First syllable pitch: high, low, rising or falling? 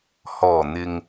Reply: low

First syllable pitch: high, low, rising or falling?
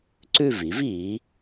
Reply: falling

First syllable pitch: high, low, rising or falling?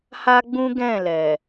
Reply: high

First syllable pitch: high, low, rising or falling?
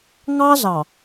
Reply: high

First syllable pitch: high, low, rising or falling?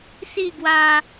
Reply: falling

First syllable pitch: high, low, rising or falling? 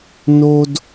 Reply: high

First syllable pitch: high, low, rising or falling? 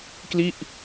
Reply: falling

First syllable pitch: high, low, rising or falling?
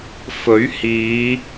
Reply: rising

